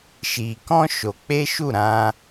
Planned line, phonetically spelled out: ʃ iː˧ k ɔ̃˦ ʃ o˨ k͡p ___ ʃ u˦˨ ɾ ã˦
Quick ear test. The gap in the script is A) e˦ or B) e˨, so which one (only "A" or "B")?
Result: A